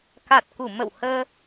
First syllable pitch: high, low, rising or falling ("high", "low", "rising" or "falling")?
low